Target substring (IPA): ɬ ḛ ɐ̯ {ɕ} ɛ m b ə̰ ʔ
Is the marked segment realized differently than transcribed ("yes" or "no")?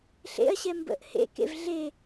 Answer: no